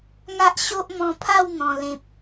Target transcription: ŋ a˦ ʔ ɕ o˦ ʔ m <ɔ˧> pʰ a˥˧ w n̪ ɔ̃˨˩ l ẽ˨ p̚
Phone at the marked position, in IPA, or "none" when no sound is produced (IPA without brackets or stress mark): ɔ̃˧